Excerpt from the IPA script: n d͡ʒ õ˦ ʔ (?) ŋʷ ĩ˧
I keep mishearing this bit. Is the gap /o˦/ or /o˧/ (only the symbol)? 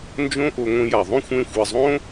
o˧